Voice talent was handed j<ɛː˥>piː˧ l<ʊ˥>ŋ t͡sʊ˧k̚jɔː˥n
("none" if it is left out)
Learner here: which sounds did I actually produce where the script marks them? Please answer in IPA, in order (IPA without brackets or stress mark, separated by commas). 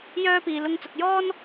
œː˥, ʊ˧